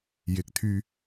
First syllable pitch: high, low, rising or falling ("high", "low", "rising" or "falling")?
rising